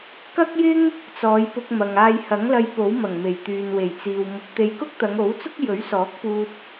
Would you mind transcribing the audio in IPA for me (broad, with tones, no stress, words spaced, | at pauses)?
kɐ˥k̚jɪ˥ŋ | t͡sɔː˨˧jpʊ˧k̚mɐ˨ŋ aː˧jhɐ˨˥ŋlɐ˧j po˨˥wmɐ˨˩ŋ me˨˩j t̪yː˨nwe˨˩jt͡siː˨w mʊ˨˥k̚t̪e˧j kʊ˥k̚t̪ɐ˨˧ŋo˨˥wt͡sʊ˥k̚ jɵ˨˥ɥsɔː˨˥k̚puː˧t̚